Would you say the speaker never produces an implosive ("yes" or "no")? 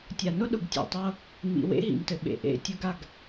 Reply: no